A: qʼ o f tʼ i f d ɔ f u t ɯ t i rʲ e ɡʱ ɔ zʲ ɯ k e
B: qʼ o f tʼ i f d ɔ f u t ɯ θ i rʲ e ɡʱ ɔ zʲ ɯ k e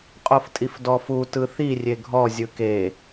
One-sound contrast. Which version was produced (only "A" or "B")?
B